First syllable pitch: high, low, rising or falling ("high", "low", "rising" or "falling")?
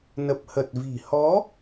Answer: low